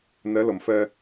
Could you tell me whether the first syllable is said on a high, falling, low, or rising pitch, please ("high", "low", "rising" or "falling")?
rising